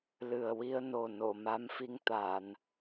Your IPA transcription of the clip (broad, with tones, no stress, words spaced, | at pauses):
lɨ˨˩ə̯wi˧ə̯no˨˩ no˨˩˨ma˧˥mfi˧ŋt̪a˨˩˨n